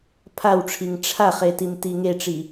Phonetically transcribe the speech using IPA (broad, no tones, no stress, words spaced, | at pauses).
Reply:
pʰawʈ͡ʂʰiŋ ʈ͡ʂʰaχe timtiŋeʈ͡ʂi